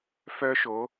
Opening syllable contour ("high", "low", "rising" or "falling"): high